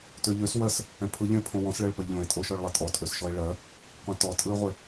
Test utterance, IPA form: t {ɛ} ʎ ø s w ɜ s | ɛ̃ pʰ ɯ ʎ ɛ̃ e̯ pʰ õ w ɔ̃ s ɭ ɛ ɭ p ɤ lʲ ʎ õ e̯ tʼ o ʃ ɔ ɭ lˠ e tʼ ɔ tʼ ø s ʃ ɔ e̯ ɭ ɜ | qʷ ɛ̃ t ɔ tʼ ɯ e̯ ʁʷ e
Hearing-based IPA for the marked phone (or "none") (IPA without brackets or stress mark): ø